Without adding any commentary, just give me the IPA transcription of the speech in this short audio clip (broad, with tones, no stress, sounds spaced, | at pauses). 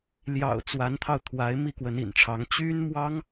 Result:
l j ɑ̰˨˩ ʊ̯ t͡s w a˧˥ n t̪ʰ ɑ˧ ʊ̯ t̪ʰ w a˧˥ ɪ̯ m i˥˩ k w ə˧˥ n ḭ˨˩ n ʈ͡ʂʰ ɑ˧˥ ŋ t͡ɕ y˥ n m w ɑ˥ ŋ